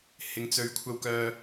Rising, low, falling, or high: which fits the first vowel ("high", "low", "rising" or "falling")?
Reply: low